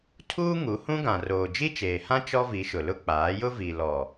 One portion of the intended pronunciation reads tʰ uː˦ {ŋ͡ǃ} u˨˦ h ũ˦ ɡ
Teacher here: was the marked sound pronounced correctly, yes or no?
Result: no